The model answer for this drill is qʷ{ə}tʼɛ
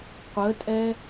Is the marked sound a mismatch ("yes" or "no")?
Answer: no